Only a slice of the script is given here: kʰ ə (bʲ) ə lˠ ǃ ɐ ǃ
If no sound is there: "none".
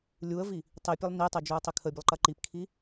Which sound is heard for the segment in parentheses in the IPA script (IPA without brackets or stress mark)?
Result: bʲ